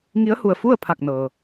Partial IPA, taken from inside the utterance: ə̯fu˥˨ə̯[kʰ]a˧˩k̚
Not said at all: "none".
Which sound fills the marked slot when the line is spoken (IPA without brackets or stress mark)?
pʰ